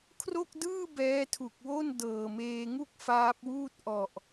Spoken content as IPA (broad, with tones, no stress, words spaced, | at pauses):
kʰro˥˩k̚dɯː˥˩ bɛː˦˥tʰu˨˩k̚wo˥˩n dɤː˨˩meː˧ŋu˥˩k̚ faː˦˥p̚wuː˥˩t̚ ʔɔ˨˩ʔ